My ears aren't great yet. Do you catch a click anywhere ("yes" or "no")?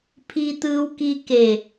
no